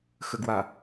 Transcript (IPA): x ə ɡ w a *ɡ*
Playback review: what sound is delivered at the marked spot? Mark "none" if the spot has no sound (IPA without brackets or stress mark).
none